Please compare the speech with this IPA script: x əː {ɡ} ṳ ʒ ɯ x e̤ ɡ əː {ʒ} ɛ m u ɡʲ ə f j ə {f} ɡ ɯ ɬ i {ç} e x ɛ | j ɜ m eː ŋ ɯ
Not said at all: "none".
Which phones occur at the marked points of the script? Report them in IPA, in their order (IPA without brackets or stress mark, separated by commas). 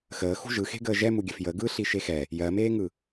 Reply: x, ʒ, none, ʃ